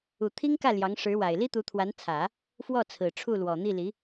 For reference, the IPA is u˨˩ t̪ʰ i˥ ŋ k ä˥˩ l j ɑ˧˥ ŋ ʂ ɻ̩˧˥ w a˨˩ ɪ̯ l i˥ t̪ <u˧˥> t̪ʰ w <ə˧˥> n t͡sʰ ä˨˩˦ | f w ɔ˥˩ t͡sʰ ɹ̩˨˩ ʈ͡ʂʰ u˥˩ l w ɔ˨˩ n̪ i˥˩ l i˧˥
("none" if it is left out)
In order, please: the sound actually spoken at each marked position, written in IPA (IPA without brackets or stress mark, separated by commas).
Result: u˧˥, a˧˥